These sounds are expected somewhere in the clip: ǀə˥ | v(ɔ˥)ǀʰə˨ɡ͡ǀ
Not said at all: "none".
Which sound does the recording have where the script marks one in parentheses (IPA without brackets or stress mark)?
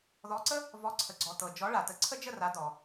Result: ɔ˨˥